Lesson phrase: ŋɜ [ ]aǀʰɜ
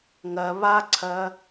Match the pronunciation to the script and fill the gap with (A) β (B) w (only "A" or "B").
A